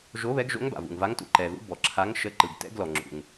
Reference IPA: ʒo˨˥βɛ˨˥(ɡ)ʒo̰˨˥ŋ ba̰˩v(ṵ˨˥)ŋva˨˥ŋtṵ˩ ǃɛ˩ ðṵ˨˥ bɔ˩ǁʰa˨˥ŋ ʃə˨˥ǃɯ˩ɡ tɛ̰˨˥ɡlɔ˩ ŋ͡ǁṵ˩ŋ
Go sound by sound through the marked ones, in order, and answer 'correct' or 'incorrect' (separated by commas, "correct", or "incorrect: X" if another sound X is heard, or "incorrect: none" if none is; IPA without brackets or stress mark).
correct, incorrect: ṵ˩